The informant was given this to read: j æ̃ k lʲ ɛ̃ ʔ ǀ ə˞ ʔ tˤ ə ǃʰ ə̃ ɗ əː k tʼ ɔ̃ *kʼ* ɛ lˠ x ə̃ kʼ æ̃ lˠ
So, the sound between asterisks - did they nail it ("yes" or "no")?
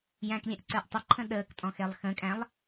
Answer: no